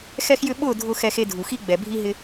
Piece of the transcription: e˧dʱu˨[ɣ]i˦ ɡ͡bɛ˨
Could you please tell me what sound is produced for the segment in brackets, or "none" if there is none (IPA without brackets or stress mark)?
x